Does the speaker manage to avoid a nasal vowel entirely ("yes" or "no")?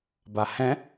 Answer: no